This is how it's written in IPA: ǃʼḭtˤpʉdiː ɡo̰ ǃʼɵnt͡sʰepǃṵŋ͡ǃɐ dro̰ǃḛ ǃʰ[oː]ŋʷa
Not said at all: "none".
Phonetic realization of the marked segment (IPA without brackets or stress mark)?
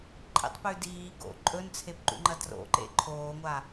oː